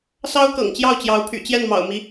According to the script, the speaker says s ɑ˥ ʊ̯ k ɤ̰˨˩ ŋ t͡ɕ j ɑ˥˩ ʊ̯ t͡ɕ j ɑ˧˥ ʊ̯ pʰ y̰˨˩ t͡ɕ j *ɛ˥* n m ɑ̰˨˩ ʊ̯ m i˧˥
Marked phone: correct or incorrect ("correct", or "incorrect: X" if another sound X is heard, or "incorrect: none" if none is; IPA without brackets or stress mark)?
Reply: incorrect: ɛ˥˩